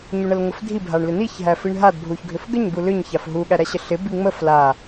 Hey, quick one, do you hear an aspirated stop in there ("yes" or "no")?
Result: no